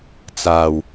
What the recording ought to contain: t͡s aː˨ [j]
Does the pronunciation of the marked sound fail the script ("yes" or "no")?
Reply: yes